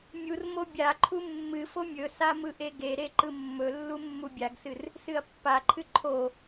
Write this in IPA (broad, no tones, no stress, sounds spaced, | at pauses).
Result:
mʲ u r m o bʲ a ǃʰ u mː ɨ f o mʲ ɵ s a m ɯ ʔ e ɡ e ɾ e ǃ ɯ mː ɵ lː u mː u bʲ a ɡ s ɨ r | s ɨ ɐ̯ pː a ǃʰ ɨ ǃʰ o